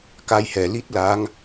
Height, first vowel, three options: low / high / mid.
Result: low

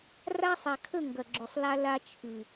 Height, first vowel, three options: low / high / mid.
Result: low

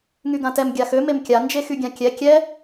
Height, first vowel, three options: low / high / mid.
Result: high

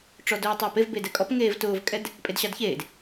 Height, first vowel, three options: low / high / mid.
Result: mid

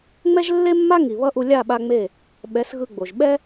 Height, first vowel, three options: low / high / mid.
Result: mid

